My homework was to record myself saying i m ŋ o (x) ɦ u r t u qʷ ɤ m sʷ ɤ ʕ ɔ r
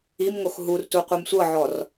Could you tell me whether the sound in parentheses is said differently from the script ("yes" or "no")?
no